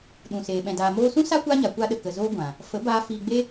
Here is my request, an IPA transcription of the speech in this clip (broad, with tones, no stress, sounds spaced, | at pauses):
ɗ ũ˨ s eː˨ ɓ ɛ̃˨ d aː˨ m oː˧ s ũ˦ s a˦ kʷ aː˦ ɲ a˨ kʷ a˧ ɗ ə˨ k ə˨ z oː˧ ɡʷ ã˨ | f ə˨˦ b aː˧ f iː˧ ɡ͡b e˦